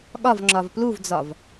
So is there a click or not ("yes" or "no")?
yes